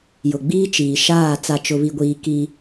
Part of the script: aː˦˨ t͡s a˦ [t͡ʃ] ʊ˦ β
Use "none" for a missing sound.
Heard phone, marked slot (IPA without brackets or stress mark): t͡ʃ